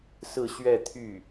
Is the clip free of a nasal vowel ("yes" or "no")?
yes